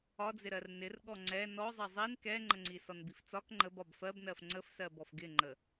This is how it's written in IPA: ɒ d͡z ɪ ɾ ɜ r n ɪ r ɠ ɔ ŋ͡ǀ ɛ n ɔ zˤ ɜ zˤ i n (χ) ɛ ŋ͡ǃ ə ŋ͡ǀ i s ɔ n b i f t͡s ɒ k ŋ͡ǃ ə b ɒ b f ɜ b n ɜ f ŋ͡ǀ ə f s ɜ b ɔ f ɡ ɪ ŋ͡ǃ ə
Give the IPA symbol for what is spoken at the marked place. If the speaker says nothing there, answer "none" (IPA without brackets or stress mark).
k